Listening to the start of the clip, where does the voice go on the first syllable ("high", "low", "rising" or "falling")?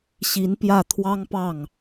rising